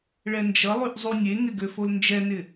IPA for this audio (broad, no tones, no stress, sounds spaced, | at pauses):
ɭ ɛ n d͡ʒ ʌ lˠ ʉ ʔ zˤ u nʲ e ŋ ɪ ɡ ø f o l n d͡ʒ ɛ n ɪ